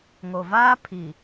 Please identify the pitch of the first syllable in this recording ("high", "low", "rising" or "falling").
low